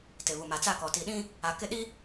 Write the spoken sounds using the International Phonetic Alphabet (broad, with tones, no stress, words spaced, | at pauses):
tɪ˨βu˨ ma˨t͡sa˦˨kɔ˨ ti˨ɗĩ˦ | a˨kɪ˦˨ɗi˦